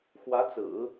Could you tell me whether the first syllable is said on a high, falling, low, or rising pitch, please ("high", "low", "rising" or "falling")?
rising